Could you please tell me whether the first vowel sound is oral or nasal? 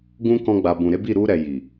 nasal